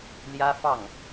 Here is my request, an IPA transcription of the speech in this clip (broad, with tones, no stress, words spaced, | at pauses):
ljä˥ fɑ˥˩ŋ